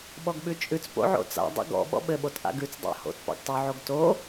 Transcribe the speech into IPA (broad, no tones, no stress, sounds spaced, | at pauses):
ɓ ɔ ɡ ɓ ʉ t͡ʃʼ ʉ t͡s p o̰ ʕ o̰ t͡s a̰ dˤ ɛ̰ ɡ ɔ̰ ɓ ɔ̰ ɓ ɘ ɓ o t ʔ a̰ ɡ ʉ t͡s dˤ ɑ̰ h o̰ t p ɑ̰ ɡ tˤ ʉ ʕ o ɡ t o